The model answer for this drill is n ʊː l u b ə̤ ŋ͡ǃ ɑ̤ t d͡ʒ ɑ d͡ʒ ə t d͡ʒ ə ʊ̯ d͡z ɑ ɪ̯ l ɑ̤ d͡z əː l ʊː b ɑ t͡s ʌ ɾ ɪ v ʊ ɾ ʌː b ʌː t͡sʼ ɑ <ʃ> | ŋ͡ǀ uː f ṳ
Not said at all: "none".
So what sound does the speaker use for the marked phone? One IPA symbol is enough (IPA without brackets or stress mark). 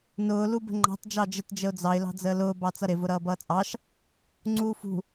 ʃ